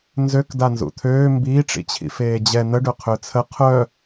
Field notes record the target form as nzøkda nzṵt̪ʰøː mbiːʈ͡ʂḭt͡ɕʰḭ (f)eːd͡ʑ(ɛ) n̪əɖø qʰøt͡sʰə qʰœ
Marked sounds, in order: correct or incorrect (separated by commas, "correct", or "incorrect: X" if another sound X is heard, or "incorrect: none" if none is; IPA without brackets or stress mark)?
correct, correct